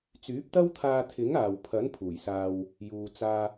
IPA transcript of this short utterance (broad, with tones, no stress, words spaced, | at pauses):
t͡syː˨˥p̚t̪ɐ˥wt̪ʰaː˧t̪ʰɪ˨˥ŋ aː˨w pʰɐ˨˥n pʰuː˨˩jsaː˧w | juː˨t͡saː˧